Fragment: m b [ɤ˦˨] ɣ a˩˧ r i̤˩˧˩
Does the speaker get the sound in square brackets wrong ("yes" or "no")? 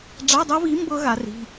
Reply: yes